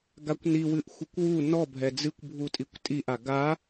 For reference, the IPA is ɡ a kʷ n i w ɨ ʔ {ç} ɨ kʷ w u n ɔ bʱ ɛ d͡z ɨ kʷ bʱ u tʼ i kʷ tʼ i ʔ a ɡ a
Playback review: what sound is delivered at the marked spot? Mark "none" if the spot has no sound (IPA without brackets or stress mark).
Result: xʷ